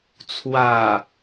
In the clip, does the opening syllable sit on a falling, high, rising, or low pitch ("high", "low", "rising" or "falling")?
low